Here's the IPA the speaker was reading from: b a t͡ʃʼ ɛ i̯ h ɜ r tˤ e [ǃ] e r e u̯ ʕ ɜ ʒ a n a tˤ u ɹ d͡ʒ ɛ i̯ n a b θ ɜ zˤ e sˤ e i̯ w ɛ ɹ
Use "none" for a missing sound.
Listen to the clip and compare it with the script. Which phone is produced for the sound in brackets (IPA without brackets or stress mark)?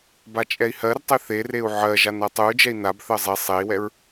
θ